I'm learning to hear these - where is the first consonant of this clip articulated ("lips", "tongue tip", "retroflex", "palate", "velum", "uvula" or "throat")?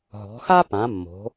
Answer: throat